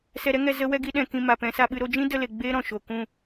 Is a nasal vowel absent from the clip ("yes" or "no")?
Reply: no